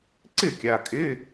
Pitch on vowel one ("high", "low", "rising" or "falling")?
falling